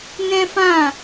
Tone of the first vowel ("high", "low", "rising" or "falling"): high